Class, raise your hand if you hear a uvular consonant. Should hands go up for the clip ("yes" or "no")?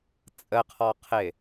yes